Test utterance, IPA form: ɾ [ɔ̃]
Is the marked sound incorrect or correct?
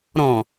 correct